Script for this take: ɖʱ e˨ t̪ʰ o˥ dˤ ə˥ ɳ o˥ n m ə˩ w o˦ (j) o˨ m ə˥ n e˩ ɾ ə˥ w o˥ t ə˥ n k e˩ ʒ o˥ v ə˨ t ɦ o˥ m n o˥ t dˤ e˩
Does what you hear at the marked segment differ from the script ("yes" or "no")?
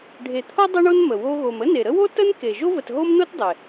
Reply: yes